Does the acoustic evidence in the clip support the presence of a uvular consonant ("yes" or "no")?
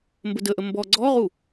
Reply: yes